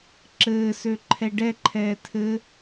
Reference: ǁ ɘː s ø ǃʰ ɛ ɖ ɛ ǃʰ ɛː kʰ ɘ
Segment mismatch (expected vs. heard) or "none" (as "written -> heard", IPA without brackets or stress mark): kʰ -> tʰ